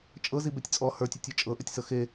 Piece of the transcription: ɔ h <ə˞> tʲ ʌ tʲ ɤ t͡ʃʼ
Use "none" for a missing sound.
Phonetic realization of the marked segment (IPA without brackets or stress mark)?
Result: ə˞